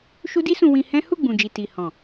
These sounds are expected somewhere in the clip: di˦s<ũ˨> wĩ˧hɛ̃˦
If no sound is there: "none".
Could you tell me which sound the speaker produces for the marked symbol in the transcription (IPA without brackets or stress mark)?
ũ˧